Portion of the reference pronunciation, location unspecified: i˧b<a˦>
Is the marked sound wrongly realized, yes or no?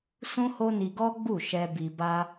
no